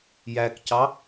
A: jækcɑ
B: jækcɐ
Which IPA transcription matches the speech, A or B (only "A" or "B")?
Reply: A